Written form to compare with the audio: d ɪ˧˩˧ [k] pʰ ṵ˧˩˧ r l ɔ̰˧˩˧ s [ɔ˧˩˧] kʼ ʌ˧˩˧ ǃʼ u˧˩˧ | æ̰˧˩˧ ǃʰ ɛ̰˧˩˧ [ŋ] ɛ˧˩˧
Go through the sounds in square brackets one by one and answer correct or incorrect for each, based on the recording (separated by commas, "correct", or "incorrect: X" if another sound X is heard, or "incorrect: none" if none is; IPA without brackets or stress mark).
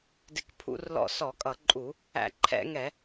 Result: correct, correct, correct